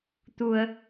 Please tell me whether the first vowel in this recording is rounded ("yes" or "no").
yes